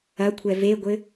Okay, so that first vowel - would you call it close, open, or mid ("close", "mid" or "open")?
open